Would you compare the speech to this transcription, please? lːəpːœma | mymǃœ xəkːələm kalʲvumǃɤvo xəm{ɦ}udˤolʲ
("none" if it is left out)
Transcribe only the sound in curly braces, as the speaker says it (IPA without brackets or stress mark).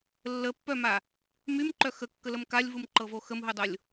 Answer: ɦ